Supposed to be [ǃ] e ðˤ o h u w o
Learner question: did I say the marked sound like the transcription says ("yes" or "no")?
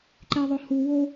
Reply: yes